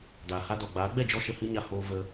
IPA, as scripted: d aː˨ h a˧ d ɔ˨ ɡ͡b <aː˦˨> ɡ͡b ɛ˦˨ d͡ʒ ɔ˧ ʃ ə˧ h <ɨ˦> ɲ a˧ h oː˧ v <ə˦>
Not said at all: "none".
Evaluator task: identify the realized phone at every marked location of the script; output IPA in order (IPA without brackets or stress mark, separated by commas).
aː˨˦, ɨ˦, ə˧